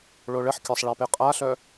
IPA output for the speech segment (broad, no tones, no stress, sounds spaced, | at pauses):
ɭ o ɭ ə ħ kʲ a sˤ ɭ a p e qʼ a ɬ œ